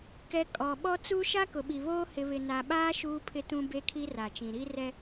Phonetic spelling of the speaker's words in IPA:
k ɛ˨ kʼ ɔ˨ ɓ ɔ˦ t͡s u˦ ʃ a˦ k ʊ˨ ɓ i˨ β oː˦ h ɪ˨ β ɪ˨ n a˨ ɓ aː˦ ʃ uː˦ pʰ ɪ˦ t ũ˦ b e˦ kʰ i˦ r a˨ t͡ʃ ĩ˨ ɾ i˦ r ɛ˦

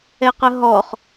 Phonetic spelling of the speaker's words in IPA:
ɛ q ə ɦ ɔ χ

